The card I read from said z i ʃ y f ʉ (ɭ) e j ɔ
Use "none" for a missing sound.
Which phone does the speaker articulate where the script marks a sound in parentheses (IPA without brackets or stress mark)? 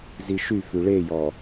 ɭ